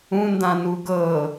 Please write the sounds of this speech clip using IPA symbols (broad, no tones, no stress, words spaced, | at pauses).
ũndãnu ɡɤ